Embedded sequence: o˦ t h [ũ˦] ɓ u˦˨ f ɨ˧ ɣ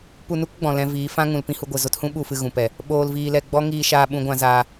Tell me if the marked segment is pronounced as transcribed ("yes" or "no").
yes